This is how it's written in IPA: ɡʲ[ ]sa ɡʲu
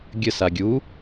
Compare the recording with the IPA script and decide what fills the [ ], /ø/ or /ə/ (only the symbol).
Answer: ə